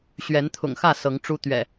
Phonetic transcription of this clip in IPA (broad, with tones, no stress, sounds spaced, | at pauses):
ɕ ɥ ɛ˨˦ n t̪ʰ ʊ̰˨˩ ŋ x ä˥˨ s ɤ˨˦ ŋ ʈ͡ʂ u˦ t̪ ɥ ɛ̰˨˩